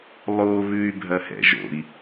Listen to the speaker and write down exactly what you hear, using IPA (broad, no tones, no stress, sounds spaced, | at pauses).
lˠ o β ʉ y̯ bʱ ɐ h ɛ̰ ʒ o̰ i̯